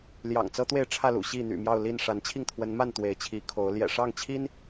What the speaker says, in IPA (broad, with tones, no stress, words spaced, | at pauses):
ljɑ̰˨˩ŋt͡sɤ˦t̪we˥˨ɪ̯ ʈ͡ʂʰä˥˨lṵ˨˩ ɕi˥˨n̪y̰˨˩ mjɑ˥˨ʊ̯li˥˨n ʂa˨˦nt͡ɕʰi˥˨ŋ t̪ʰwə˨˦nma˥˨n t̪we˨˦ɪ̯t͡ɕʰi˨˦ kʰo˨˦ʊ̯ ljɛ̰˨˩ʂɑ˥˨ŋt͡ɕʰi˦n